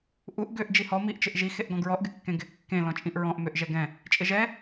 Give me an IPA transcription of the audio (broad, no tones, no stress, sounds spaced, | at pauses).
ʔ u ʔ ɡ ʏ ʔ d͡ʒ i h ɔ m i ʔ t͡ʃ ɪ ʔ ʒ i x e ʔ ɡ ɔ̃ ɡ ɹ ɔ ʔ ɡ ɪ kː ẽ ɡ ɪ kː ẽ l ɔ̃ t͡ʃʼ ĩ ʔ ɹ ɔ̃ ʔ m ʏ ʔ ʒ ɛ ɡ ɛ̃ | t͡ʃʼ ɪ ʒ ɛ